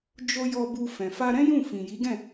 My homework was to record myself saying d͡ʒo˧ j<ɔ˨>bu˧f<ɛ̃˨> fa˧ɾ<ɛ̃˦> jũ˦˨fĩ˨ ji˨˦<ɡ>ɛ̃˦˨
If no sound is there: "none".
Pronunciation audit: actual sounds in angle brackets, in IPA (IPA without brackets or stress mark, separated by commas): ɔ˧, ɛ̃˨, ɛ̃˦, ɡ